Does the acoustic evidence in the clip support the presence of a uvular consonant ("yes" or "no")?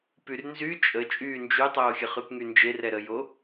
yes